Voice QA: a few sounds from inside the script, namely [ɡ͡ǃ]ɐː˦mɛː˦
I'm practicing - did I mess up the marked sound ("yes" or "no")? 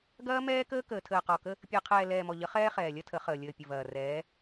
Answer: yes